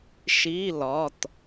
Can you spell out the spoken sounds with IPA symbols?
ʃ i˧˥˧ l ɒ˩˧˩ t

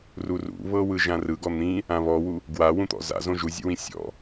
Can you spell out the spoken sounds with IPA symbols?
r u r ṵ β ɤ w ɯ ʒ ã r ɯ ɡ ɔ n̪ ĩ | ã β ɔ w u | ɡ w a w ũ t̪ ɔ̰ z a̰ z õ ʒ u zʲ ṵ w ĩ sʲ ɔ̰

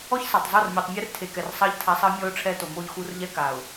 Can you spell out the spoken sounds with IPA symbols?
ɔ˦ ç s a˨ tˤ zˤ o˦˨ r mʲ u˨ tˤ mʲ ɛ˦ r tʰ e˨ k ɛ˨ r sˤ ɜ˦ ʎ tʰ a˦ sˤ ɜ˦ mʲ ɔ˦ ʊ̯ ʈ͡ʂʰ ɛ˦ t o˨ m o˦ ʎ x u˦ r ʎ ɛ˦ k a˨ ʊ̯

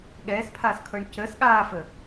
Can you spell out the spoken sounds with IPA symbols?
ɠ ɛː s pʰ aː s kʰ ɤː ɳ c əː s ɠ aː f ə

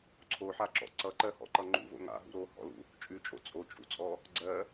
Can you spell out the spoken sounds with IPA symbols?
ǀʰ o ħ a ǁ ɔ̰ ǀ ʌ ǃ ɜ h ɔ̰ ǃ ʌ ŋ͡ǃ ṵ v o̰ ŋ a̰ ɦ ṵ ɾ o h ɔ̰ l ṵ | t͡ʃʼ ʉ t͡ʃʼ o̰ t͡sʼ o t͡ʃʼ ṵ t͡sʼ ɔ | ɡ͡ǀ ɜ

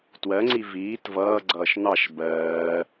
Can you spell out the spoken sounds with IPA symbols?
t w ɜ ŋ͡ǀ i v iː t v ʌː ɡ͡ǀ ʌː ʃ n̪ ɑ ʃ b ɜː

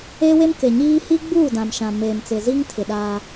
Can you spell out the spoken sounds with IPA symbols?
eː˦ w e˦ m k e˨ ɲ iː˦ h i˦ ɡ͡b uː˦˨ d ã˨ m ʃ ã˨ m eː˨ m t͡s ɪ˨ z i˦ ŋ tʰ ɪ˨ ɗ aː˦

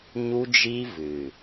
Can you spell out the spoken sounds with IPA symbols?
ɲ u˦ d͡ʒ i˦ v ɨ˨

